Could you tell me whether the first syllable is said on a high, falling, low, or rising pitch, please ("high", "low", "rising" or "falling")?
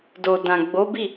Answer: low